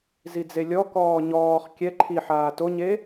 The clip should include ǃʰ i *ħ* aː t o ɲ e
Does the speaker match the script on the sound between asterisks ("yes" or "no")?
yes